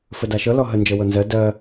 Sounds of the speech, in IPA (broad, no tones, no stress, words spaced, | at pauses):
fədaʃɤ lɔɦə nd͡ʒɤwɤnzɜ dɜ